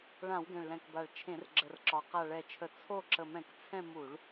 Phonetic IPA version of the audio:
ɭ ã˧˩˧ w ɡ ɛ̃˨˩ ɭ l ɛ̃˨˩ k b a˨˩ ɭ t͡ʃʰ ẽ˧˩˧ r ɡ͡ǁ ə˨˩ r ǁ ɒ˨˩ q a˨˩ ɭ ɛ˨˩ t͡ʃʰ ə˨˩ t͡sʰ o˦˨ ǁ ə˨˩ m ɛ̃˧˩˧ k t͡sʰ ɛ̃˦˨ m u˧˩˧ ɭ

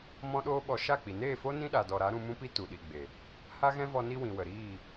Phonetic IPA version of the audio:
m ɔ̃˦ ɗ oː˦ ɓ ɔ˧ ʃ a˦˨ k͡p i˨ n eː˦˨ f o˦ n ĩ˦ ɗ a˨ d ɔ˨ ɾ a˨˦ ɾ ũ˧ m ũ˦ p i˦ t u˨ ɗ i˨ ɡ͡b e˨ | h a˦ ɣ ɛ̃˦ v ɔ˧ n i˦ w ĩ˨ w ə˨ ɾ iː˦˨

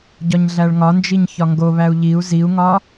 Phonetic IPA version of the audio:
ɟ ɒ ɲ ɮ æ ɭ ŋ ɒ n d͡ʒ i ɲ ç ɒ ŋ ɡ o β æ u̯ ʎ i u̯ z i u̯ ŋ ɒ

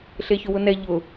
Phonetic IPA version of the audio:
ɬ e ç ʊ w ʊ n ɛ ʎ ʊ

